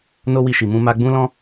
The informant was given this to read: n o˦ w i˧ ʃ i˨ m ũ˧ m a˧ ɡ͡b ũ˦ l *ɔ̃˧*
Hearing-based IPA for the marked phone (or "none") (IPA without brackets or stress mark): ɔ̃˦